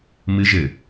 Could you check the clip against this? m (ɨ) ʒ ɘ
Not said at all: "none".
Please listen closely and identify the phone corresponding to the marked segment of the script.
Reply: ɨ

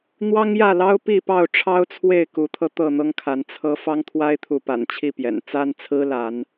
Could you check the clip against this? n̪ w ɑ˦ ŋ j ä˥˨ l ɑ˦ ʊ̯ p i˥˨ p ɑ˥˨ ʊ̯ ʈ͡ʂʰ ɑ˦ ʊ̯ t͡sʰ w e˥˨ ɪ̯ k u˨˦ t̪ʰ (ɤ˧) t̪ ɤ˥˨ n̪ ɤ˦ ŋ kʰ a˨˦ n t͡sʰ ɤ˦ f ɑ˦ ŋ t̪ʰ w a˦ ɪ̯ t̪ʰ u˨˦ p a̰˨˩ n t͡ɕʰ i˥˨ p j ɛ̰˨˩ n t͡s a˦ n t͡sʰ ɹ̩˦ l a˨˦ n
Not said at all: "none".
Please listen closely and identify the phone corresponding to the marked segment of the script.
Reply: ɤ˧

